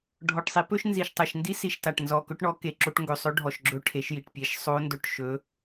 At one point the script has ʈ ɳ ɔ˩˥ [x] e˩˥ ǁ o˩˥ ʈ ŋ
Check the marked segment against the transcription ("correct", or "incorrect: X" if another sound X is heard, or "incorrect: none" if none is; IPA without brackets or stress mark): incorrect: k